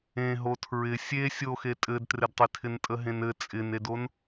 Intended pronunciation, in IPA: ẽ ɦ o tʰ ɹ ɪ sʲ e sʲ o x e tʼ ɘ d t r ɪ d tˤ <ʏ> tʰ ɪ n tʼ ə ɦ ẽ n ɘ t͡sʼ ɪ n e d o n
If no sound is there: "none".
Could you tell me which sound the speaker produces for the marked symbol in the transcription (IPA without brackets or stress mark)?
ɪ